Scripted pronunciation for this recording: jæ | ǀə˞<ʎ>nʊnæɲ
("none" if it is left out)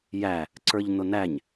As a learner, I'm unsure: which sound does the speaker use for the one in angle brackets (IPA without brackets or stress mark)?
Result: ʎ